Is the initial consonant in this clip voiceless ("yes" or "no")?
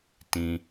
yes